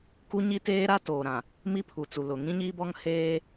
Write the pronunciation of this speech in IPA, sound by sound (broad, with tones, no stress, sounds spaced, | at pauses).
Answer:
k u˦ ɲ i˦ t eː˦ ɾ a˦ t oː˨ ɾ ã˨ | m i˦ pʰ u˨ t͡s u˨ l ʊ˨ ŋ ĩ˦ ɲ iː˦ b ɔ˦ ŋ h eː˦